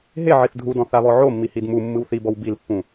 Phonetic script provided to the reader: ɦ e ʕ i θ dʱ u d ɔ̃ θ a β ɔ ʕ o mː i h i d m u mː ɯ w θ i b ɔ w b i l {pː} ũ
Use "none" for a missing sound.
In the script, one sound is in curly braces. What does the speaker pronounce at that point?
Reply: pː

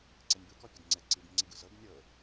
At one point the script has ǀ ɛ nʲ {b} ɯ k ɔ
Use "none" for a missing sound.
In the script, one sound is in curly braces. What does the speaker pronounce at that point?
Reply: b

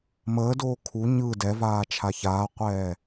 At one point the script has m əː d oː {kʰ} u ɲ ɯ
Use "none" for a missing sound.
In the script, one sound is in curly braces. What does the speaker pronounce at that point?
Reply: kʰ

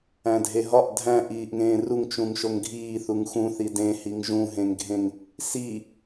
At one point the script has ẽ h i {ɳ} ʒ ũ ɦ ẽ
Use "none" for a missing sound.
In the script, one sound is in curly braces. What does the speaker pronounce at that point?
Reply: ŋ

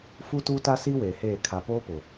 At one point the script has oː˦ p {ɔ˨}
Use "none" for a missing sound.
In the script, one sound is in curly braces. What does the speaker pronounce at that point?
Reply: ʊ˨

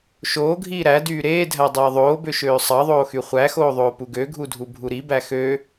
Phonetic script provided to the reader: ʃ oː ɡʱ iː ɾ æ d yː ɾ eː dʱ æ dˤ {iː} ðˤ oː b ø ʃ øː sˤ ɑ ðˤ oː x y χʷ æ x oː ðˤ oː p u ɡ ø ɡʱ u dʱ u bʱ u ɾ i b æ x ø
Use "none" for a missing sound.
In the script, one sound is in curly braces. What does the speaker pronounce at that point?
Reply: eː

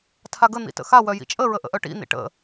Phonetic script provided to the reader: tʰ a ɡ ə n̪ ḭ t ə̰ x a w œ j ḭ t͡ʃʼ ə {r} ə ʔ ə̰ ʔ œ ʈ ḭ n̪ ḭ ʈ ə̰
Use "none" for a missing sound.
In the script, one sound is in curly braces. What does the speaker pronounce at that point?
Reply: ɹ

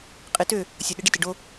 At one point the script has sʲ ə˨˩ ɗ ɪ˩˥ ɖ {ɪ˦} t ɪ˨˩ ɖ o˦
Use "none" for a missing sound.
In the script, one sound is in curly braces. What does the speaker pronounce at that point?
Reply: ɪ˦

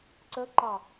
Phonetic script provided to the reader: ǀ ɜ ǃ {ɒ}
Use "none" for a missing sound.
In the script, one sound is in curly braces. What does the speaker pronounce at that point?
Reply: ɑ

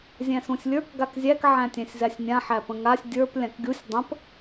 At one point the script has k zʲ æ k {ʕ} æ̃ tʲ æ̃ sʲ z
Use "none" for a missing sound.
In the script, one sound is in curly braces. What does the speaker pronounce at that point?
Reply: ʕ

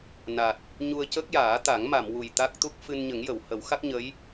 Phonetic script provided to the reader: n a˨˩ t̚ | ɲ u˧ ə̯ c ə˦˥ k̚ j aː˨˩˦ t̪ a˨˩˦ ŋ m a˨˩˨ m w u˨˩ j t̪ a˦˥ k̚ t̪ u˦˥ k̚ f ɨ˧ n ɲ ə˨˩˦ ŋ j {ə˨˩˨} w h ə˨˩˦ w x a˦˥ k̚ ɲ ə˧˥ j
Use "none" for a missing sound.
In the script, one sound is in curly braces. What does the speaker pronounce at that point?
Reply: ə˨˩˨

